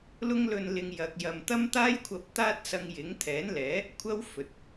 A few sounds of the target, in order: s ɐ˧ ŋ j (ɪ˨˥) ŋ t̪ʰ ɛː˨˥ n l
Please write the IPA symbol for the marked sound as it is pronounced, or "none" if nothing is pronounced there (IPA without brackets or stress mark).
ɪ˨˥